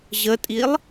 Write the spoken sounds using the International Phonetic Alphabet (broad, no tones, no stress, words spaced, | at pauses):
ʑətʼilˠ